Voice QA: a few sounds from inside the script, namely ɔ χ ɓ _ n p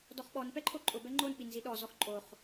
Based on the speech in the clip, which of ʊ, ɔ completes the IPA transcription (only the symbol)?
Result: ɔ